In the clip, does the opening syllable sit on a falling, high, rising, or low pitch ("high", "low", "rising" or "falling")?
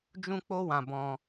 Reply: high